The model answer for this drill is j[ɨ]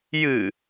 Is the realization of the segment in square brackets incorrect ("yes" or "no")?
no